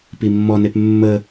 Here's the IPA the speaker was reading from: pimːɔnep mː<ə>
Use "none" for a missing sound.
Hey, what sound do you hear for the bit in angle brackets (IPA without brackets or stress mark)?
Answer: ə